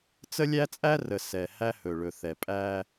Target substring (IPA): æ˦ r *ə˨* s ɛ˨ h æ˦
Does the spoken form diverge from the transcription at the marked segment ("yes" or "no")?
no